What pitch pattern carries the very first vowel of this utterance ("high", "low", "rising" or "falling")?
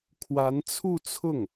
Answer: rising